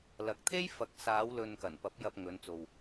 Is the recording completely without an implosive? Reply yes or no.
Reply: yes